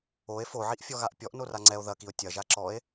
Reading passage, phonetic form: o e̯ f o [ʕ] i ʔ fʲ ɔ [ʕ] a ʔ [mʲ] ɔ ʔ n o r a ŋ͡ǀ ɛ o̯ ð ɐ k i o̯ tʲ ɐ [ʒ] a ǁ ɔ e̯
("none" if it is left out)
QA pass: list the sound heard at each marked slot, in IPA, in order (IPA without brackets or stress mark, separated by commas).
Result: ʕ, ɣ, pʲ, ʒ